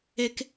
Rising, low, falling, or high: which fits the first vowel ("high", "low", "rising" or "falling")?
high